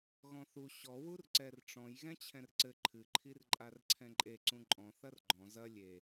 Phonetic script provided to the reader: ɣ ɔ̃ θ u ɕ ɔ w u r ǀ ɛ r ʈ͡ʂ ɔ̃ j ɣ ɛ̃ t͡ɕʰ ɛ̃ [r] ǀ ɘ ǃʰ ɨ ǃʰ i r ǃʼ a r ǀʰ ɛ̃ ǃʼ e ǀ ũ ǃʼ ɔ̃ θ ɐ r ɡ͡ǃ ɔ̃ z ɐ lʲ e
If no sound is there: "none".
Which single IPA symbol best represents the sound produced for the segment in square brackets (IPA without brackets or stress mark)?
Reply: r